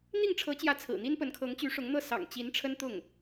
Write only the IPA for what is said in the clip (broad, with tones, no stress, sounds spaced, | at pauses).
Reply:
n̪ i˥˩ ŋ ʈ͡ʂʰ ɤ˧˥ t͡ɕ j ä˧˥ t͡sʰ ɹ̩˨˩ n̪ i˥ n p ə˧˥ n kʰ ɤ˧˥ ŋ t͡ɕ y˧˥ ʂ ʊ˧˥ ŋ n̪ ɤ˥˩ s ɑ̰˨˩ ŋ t͡ɕ i˧˥ n ʈ͡ʂʰ ə˥ n t̪ ʊ˥˩ ŋ